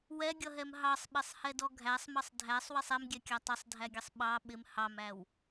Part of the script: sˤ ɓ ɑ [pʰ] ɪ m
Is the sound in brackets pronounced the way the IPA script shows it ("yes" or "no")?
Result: no